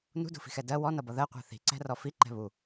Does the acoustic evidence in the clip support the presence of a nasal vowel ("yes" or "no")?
no